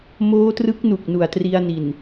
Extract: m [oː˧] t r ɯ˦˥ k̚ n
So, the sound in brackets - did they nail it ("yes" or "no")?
no